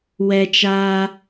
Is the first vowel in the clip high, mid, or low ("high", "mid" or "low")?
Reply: mid